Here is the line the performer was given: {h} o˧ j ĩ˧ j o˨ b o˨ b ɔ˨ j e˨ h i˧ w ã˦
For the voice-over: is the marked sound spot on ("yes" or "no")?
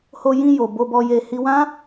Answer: yes